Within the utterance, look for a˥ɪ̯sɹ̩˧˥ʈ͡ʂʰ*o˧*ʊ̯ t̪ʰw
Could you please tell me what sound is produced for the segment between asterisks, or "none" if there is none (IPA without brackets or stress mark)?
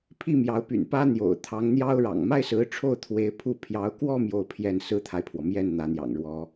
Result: o˥˩